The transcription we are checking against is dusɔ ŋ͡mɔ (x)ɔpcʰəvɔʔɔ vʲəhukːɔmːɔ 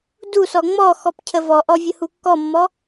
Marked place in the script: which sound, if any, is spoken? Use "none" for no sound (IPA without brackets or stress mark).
x